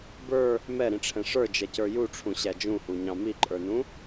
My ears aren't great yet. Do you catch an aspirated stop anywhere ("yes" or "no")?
yes